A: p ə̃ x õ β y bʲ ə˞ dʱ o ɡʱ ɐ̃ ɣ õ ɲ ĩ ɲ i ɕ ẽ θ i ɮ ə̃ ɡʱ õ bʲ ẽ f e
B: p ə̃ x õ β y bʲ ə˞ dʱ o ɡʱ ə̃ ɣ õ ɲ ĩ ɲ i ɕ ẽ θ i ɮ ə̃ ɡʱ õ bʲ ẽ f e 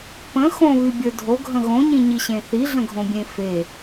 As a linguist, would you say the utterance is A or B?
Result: B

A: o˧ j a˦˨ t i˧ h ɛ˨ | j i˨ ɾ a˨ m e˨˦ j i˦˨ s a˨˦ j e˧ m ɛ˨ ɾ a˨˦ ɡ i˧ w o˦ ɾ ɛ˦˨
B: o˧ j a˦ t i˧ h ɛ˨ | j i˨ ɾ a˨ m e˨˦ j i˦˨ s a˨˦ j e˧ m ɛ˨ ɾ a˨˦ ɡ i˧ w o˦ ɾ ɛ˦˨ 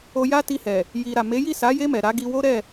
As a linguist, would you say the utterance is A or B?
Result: B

